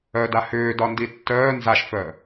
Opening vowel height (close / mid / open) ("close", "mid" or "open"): mid